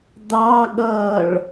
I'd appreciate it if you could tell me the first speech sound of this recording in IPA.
d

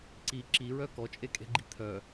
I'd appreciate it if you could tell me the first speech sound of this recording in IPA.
ǀ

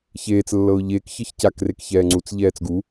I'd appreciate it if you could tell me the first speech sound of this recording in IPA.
ç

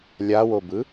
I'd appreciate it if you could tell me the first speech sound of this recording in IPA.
lʲ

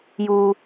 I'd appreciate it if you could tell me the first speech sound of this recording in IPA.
j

